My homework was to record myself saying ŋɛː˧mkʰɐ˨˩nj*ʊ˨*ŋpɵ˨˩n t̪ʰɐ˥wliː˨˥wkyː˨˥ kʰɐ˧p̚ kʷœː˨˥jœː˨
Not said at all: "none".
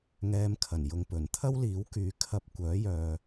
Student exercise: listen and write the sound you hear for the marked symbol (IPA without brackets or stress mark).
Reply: ʊ˨